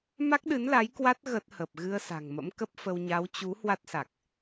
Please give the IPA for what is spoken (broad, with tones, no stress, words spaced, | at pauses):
ma˦˥k̚ɗɨ˨˦nla˨˦j kwa˦˥t̚ ɣə˦˥t̚hə˨˩p̚ ɣɨ˧ə̯sa̤˨˩ŋmə̰˧˥m kə˦˥p̚fə˧w ɲa˨˦wt͡ɕu˨˦ hwa˦˥t̚sa˨˩k̚